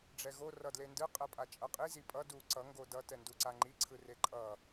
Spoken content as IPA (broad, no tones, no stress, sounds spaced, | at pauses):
ɖ͡ʐ ɛ ɣ o r ʌ d l e n d ɯ qʼ ɛ pʼ a t͡ʃʼ ʌ qʼ i z i pʼ ʌ d u ǀ ʌ ŋ ɡ o d ʌ t ɛ n d u ǀ a ŋ͡ǃ i ǀʰ ɯ r e ǃʼ ʌ